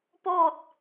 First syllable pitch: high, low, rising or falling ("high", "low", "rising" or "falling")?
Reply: falling